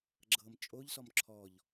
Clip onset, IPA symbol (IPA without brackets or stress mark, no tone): ɡ͡ǁ